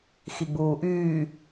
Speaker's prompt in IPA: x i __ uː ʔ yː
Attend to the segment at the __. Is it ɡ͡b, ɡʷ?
ɡ͡b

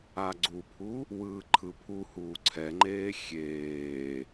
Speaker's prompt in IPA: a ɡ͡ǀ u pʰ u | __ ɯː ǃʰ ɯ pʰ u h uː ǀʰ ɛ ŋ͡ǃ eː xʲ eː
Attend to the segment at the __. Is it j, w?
w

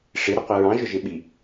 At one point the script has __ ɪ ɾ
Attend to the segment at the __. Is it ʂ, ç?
ʂ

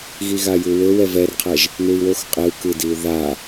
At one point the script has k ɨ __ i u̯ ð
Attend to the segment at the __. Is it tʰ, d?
d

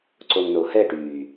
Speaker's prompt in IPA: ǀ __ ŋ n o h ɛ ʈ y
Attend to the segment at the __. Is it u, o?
o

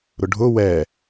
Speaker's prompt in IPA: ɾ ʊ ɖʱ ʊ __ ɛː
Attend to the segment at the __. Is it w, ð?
w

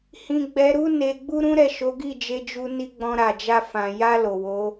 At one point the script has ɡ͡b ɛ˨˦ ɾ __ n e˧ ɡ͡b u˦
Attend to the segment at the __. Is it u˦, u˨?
u˦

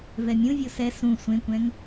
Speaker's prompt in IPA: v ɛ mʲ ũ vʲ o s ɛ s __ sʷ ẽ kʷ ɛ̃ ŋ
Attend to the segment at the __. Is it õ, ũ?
ũ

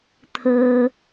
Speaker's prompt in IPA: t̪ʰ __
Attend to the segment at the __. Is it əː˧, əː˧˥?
əː˧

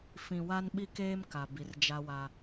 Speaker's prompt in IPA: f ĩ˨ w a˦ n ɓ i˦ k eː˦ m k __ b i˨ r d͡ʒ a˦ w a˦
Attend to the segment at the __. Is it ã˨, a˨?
a˨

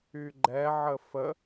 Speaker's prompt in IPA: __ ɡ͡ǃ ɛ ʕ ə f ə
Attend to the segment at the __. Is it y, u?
y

